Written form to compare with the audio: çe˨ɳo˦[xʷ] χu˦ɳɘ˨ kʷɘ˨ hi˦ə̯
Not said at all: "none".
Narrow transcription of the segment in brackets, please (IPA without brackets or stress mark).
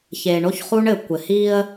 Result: ç